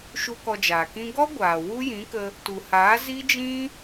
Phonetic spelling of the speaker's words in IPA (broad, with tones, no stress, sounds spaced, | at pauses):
ʃ u˧ k ɔ˧ d͡ʒ aː˨ k ĩ˦ ɡ ɔ˦ ɡʷ aː˨ w u˦ j ĩ˨˦ k ə˧ | t u˨ h aː˨˦ z i˦ d͡ʒ ĩ˦